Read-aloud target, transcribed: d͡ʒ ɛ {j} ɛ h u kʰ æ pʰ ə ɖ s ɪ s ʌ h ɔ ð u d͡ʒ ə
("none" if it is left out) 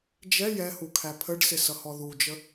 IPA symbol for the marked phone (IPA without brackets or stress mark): j